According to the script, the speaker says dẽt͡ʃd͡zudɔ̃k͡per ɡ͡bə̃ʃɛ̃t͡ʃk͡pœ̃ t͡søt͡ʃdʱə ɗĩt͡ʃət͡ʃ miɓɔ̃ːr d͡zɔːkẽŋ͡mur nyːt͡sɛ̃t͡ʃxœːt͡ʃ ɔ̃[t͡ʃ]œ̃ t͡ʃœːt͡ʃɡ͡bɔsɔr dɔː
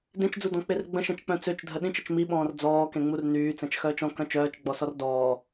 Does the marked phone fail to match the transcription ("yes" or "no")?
yes